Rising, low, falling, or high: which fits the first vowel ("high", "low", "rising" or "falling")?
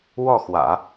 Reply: falling